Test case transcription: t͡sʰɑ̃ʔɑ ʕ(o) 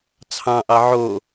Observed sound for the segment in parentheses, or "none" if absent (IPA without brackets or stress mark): o